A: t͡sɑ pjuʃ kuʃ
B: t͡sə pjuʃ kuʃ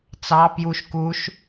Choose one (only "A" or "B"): A